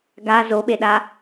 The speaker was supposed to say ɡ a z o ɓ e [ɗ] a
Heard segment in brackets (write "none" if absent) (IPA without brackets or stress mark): ɗ